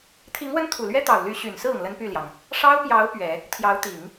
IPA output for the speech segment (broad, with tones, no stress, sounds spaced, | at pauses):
t̪ʰ i˧˥ ŋ w ə˥ n t̪ʰ u˨˩ l ɥ ɛ˥ t̪ ɑ˨˩ ʊ̯ l y˧˥ ɕ y˨˩ n s ɹ̩˥˩ ʊ˩ ŋ l ə˥ n p y˥˩ l j ɑ˩ ŋ | ʂ ɑ˥ ʊ̯ p j ɑ˧˥ ʊ̯ p ɥ ɛ˨˩˦ | t̪ʰ j ɑ˧˥ ʊ̯ t̪ i˨˩˦ ŋ